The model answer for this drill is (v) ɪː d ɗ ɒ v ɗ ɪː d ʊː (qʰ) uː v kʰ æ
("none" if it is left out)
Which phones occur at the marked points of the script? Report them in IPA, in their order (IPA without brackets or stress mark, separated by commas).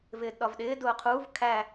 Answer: v, qʰ